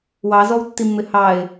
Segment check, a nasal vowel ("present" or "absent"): absent